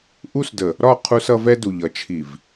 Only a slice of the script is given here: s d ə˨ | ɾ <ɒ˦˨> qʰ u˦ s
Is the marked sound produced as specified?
yes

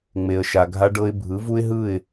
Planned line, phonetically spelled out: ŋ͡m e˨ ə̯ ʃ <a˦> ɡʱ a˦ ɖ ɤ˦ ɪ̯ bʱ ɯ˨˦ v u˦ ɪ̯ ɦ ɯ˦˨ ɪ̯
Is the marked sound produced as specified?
no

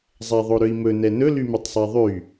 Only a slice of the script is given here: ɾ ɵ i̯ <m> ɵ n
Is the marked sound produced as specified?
yes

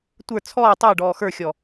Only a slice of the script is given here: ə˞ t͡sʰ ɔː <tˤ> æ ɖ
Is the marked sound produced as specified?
yes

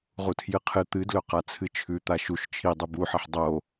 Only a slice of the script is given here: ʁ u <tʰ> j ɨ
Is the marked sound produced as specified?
yes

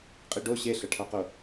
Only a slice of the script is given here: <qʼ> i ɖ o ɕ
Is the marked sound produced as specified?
yes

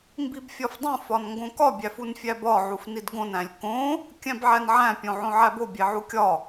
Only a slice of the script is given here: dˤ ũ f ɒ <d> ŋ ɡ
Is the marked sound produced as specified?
no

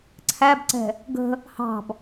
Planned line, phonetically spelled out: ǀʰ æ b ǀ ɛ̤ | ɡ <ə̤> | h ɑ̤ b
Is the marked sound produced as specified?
yes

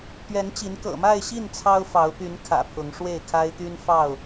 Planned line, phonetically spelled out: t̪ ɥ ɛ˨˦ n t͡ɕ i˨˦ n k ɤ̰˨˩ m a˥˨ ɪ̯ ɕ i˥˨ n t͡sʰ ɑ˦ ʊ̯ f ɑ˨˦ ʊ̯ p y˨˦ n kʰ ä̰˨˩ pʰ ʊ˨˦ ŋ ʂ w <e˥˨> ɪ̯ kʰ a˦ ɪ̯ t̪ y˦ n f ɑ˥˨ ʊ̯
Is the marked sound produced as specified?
yes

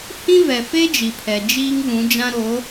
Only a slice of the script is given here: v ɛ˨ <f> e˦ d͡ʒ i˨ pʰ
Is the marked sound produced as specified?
yes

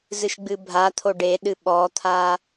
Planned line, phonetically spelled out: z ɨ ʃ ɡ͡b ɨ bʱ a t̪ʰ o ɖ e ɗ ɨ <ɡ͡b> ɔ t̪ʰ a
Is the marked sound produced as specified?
no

